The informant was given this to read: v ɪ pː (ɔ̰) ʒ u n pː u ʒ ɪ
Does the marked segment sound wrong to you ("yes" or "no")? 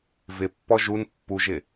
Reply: yes